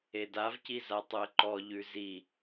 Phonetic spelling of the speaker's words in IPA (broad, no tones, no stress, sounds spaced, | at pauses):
e d a v c i z a tˤ u ə̯ ǃ ɔ ʎ ʉ z i